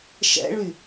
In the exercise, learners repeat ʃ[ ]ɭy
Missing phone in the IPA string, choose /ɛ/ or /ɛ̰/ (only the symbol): ɛ̰